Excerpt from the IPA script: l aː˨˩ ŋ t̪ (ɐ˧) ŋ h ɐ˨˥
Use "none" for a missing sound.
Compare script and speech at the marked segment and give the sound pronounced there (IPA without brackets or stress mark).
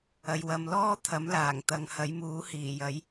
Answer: ɐ˨˧